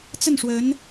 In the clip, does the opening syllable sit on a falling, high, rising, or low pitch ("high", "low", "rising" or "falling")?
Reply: falling